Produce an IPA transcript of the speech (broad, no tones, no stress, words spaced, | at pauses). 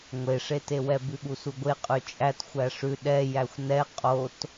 ŋʷeʂetewɛ bʉɠusuɡʷe qʼʉt͡ʃʼæt xʷæʂʉ ɗɛ jæxʷnɛ qʼot